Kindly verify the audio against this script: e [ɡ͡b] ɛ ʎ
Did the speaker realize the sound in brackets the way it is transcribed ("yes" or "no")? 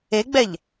yes